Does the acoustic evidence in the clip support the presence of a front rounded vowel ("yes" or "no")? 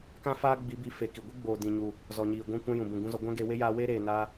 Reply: no